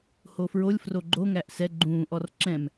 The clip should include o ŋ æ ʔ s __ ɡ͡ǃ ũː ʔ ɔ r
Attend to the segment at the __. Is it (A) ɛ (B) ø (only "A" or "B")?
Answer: A